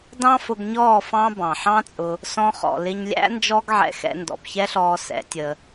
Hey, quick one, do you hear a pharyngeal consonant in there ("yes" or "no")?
yes